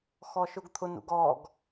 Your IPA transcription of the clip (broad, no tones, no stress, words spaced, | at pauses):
xɔʃʊɡt̪ʰʊnṵɡ ɔɡ